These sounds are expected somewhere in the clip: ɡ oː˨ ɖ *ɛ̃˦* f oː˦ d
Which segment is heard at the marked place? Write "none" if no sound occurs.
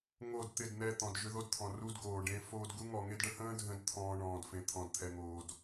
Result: ẽ˦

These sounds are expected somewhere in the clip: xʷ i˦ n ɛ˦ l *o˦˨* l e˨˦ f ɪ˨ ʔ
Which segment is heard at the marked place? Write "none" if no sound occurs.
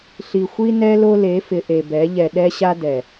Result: o˦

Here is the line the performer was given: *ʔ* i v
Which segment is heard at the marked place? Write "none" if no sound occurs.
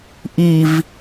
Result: ʔ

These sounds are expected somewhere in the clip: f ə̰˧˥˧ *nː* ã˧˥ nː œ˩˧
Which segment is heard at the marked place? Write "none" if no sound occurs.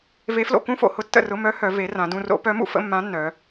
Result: mː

